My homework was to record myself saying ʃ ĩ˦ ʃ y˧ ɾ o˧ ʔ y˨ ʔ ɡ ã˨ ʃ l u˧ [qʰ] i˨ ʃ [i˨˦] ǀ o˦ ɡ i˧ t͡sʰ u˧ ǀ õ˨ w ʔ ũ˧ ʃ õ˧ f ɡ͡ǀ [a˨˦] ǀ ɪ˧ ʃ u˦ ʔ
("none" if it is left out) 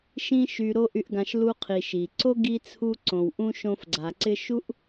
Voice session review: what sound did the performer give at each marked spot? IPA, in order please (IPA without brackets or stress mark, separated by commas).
qʰ, i˨, a˨